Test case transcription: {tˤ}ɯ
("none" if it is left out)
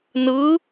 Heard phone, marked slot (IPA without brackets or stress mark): n